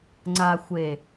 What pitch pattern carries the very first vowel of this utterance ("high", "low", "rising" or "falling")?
low